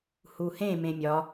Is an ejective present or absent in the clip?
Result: absent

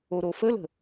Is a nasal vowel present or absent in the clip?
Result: absent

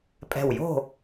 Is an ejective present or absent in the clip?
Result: present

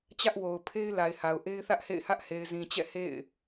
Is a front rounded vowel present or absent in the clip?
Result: absent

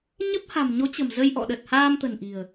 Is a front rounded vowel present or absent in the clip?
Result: absent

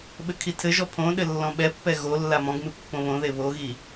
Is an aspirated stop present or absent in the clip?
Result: present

